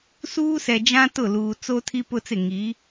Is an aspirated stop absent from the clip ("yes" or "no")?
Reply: no